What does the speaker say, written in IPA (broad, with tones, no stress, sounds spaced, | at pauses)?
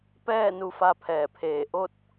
p ɛː˥˨ n u˧ f a˧ pʰ ɛː˧˩ pʰ eː˧˩ ʔ o˥˨ t̚